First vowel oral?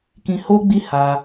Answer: no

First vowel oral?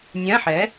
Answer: no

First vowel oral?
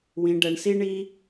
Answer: no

